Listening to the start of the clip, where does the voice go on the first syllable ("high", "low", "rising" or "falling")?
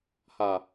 low